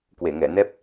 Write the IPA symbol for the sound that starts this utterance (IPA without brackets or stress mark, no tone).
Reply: k